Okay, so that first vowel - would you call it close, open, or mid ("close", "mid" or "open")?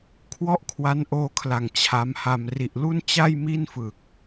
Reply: mid